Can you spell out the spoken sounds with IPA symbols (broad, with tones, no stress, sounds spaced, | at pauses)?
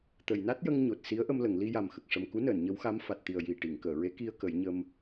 t̪ ə˨˩˨ j n a˦˥ t̚ j ə˧ ŋ ɲ o˨˩ t̚ s i˧˥ ə̯ ʔ ə˧ m l ə˨˩˨ ŋ l i˧ j a˨˩ m x ə˨˩ k̚ ʂ ə˨˩ m k u˧˥ n əː˨˩˨ n ɲ ə˧˥ w x a˧˥ m f a˨˩ t̚ t̪ i˨˩ ə̯ j i˨˩ ʈ i˨˩˨ ŋ k əː˨˩˨ ɹ e˧˥ k i˧ ə̯ k ə˨˩˦ j ɲ ə˧ m